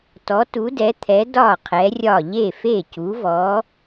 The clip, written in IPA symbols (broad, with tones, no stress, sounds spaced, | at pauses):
t ɔ˨˥ t u˨˥ d ɛ˨˥ t̪ʰ ɛ˨˥ d ɒ˥˩ qʰ ɛ˨˥ rʲ ɒ˥˩ ʎ e˥˩ f e˥˩ c u˨˥ v ɔ˨˥